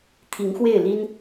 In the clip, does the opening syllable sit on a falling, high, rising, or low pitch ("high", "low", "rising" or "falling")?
rising